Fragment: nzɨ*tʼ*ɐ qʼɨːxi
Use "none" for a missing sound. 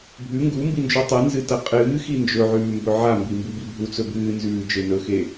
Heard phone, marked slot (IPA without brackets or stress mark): t